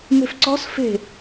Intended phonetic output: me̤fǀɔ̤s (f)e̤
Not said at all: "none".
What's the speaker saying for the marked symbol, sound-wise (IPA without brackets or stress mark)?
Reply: f